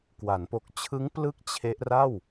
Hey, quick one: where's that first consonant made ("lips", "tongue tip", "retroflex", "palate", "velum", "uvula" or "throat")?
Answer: velum